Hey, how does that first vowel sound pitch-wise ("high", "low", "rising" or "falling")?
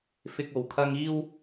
high